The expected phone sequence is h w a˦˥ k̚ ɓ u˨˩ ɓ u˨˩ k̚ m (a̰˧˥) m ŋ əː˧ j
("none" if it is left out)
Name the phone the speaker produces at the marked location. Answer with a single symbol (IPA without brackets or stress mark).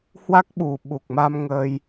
a˧